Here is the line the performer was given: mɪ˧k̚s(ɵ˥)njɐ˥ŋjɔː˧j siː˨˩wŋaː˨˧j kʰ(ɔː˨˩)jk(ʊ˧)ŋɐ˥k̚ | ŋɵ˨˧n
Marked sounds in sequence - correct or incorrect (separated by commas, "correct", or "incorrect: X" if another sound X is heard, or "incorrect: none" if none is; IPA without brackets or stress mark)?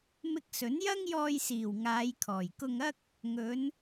incorrect: ɵ˨˥, correct, correct